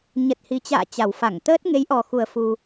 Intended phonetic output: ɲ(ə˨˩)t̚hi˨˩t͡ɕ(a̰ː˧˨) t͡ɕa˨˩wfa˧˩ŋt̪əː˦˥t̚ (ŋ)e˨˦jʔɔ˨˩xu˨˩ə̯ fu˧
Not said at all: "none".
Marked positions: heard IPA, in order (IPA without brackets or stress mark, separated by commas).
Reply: ə˨˩, a̰ː˧˨, ŋ